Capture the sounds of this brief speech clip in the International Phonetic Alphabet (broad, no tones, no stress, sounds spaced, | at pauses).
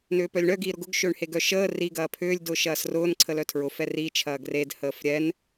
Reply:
n ʏː p œ lʲ ɳ œ ɡ iː ɾ ʊ ɡ ʊ ɡ ʃ ʏː ɳ h e ɡ œ ʃ əː r i ɡ ɐː pʰ ʏː lʲ d ʊː ʃ ɐː s r ʊː n ǀʰ ə l œ tʰ ɹ ʊ f ɛ r i t͡ʃʰ ɐː ɡ r e d h əː f ɾʲ ɛ n